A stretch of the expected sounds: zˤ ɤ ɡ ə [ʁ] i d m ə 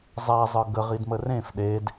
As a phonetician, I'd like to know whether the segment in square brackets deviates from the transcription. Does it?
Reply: no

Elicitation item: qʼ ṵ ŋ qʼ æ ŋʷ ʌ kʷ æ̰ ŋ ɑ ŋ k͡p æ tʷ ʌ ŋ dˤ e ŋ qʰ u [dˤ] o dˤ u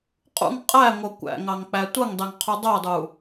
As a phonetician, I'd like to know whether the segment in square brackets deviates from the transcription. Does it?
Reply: no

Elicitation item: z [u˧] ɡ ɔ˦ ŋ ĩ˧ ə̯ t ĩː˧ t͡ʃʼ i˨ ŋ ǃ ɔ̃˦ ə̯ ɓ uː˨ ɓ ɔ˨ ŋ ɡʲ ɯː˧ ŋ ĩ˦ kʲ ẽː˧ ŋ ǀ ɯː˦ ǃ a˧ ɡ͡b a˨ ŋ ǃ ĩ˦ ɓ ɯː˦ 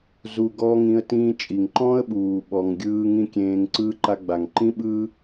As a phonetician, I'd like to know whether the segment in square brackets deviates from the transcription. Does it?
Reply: no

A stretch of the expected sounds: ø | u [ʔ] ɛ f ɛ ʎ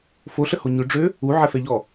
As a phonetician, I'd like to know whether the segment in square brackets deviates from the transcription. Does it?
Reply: yes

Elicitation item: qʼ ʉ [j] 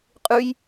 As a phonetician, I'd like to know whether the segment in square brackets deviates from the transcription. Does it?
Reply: no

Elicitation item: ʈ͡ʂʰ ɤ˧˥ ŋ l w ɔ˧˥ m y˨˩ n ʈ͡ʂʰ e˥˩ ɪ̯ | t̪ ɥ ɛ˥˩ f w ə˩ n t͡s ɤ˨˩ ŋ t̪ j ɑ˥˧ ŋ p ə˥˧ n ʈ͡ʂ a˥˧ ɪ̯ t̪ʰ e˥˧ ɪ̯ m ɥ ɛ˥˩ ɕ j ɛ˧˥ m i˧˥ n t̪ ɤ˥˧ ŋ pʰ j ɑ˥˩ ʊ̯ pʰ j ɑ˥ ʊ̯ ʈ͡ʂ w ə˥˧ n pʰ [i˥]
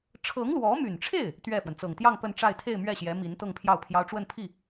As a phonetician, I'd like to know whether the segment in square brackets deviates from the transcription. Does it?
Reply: yes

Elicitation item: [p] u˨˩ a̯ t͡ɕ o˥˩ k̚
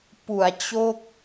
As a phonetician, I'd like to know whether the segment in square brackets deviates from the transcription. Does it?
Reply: no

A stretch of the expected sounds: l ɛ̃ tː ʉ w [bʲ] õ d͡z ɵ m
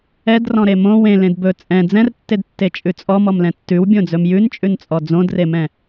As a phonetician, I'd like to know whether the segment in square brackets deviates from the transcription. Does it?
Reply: no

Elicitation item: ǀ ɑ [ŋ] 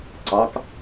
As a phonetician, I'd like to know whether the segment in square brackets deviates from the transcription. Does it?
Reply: yes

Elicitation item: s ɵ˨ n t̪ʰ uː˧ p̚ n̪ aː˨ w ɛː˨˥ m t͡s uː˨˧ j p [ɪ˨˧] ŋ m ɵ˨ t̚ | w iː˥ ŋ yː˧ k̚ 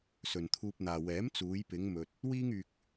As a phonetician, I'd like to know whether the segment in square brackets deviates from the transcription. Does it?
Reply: no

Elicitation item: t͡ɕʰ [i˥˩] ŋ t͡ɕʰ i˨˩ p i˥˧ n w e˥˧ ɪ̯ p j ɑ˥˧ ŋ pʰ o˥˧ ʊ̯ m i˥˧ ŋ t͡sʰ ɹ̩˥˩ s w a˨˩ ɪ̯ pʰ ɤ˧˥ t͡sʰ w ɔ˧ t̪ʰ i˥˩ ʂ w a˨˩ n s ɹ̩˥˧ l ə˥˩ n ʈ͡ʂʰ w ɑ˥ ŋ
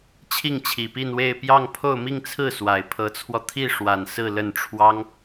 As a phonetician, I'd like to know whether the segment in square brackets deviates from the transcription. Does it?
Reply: no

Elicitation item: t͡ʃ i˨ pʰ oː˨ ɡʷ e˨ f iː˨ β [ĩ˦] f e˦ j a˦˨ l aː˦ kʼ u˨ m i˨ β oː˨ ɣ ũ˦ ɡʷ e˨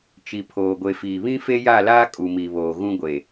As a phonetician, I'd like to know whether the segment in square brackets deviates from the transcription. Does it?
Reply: no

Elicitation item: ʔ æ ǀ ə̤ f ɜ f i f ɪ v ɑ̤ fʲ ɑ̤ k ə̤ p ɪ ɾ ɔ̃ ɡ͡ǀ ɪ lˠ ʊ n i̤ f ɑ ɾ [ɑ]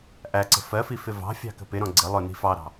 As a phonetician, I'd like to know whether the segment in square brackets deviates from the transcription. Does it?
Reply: yes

